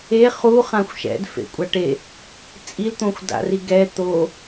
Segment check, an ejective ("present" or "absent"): present